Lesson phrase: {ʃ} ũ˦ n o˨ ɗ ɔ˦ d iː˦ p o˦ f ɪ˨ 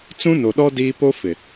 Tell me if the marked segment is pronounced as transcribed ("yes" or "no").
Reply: no